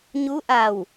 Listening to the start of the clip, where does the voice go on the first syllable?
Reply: rising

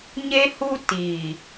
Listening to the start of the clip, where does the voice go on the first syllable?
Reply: high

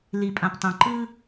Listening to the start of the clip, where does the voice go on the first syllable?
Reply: low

